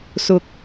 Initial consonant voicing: voiceless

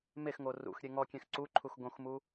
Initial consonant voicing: voiced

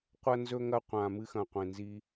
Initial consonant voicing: voiceless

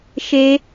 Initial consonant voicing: voiceless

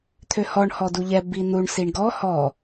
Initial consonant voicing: voiceless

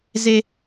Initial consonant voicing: voiced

